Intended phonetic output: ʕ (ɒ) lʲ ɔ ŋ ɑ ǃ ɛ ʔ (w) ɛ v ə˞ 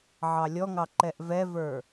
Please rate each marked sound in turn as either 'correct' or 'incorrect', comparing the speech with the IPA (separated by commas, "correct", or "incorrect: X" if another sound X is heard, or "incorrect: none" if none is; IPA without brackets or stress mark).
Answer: incorrect: ɑ, incorrect: v